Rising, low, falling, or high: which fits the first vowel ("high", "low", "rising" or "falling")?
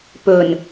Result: low